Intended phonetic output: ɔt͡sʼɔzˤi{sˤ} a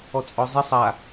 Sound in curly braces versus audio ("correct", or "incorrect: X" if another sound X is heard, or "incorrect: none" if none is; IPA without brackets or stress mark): correct